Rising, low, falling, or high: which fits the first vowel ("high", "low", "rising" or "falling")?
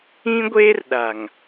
high